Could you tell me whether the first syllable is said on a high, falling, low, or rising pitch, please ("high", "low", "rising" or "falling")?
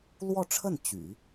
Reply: falling